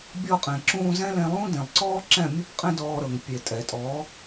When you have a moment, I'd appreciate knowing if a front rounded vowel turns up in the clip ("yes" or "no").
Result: no